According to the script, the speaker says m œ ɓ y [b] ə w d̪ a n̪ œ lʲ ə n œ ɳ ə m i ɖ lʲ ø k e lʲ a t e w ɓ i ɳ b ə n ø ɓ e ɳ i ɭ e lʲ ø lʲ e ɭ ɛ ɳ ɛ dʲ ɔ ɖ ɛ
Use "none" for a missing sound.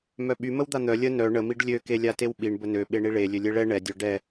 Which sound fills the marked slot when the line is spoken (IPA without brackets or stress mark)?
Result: m